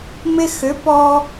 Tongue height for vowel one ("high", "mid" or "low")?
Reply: high